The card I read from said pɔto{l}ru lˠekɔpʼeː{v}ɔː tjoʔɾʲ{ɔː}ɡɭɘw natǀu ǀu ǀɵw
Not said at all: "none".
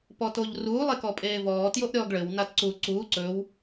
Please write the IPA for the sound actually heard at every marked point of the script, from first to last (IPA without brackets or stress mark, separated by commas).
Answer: ʎ, v, ɔː